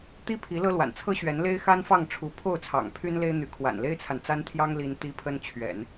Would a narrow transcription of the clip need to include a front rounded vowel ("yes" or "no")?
yes